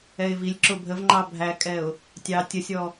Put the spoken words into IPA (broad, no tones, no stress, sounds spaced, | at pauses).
ɛ ɪ̯ v i lʲ ǁ ʊ bʱ ə v ŋ͡ǃ ɑ bʱ æ kʼ ɛ ʊ̯ | tʲ ɑ tʲ ə sʲ ɔ